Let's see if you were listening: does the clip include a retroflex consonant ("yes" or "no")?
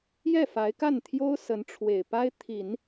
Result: yes